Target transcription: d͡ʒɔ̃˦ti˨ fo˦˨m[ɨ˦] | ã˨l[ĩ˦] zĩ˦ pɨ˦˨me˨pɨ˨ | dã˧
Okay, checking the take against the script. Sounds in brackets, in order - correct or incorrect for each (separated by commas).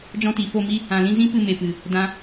incorrect, correct